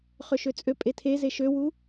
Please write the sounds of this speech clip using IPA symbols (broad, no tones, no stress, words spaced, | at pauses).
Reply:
χøʃøt͡sʼøpʼe tʰeze ʃøwu